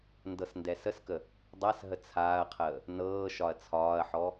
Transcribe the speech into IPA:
n d ɤ s n d ɛ s ə s k ə | dˤ a s ɦ ə t͡sʰ aː ɐ̯ qʰ əː | n ɤː ʃ ɒ ɐ̯ t͡sʰ ɒː ɐ̯ ħ ɔ

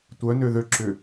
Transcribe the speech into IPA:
tʷ œ n ø ð ø ǁ ʏ

